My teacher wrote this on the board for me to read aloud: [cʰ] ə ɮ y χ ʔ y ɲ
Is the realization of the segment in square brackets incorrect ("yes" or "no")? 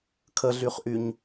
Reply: yes